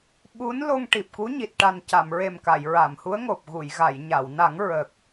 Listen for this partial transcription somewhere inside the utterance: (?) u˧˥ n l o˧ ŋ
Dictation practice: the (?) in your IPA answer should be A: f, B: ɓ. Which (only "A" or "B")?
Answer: B